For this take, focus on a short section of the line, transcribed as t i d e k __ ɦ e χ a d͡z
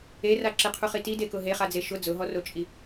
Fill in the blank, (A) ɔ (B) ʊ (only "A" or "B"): B